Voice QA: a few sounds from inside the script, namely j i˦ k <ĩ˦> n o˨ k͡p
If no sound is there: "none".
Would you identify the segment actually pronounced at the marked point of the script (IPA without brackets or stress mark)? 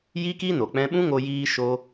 i˦